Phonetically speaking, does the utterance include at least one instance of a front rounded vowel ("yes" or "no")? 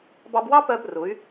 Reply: yes